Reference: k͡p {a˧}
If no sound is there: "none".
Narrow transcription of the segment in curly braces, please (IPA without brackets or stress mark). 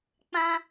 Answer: ã˧